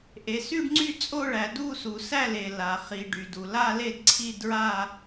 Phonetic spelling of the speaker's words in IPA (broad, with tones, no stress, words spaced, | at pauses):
ʔe˩ sy˥˧ɖŋ͡ǀy˥˧t͡sʼo˥˧ɭæ˩ du˥˧su˩sæ˥˧le˩ la˩ χi˩ ɖy˩du˩ la˥˧le˥˧dǀʰi˥˧ dɹa˥˧